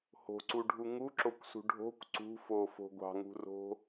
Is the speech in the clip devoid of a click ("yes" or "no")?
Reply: no